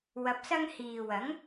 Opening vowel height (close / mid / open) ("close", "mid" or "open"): open